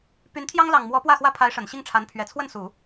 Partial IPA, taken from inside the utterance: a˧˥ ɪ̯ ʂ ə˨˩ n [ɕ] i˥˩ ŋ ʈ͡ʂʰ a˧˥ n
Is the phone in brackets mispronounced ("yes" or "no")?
no